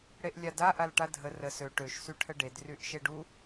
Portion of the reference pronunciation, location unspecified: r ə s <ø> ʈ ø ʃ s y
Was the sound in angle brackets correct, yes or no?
yes